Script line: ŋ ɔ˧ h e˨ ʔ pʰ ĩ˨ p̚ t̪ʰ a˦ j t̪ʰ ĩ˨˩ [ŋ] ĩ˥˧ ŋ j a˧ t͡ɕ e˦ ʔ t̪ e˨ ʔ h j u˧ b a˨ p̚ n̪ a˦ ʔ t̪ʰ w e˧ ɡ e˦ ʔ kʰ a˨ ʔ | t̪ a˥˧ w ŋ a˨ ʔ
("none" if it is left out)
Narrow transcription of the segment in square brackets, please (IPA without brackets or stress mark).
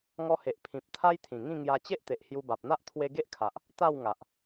ŋ